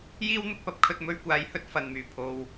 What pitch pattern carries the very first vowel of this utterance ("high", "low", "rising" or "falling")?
high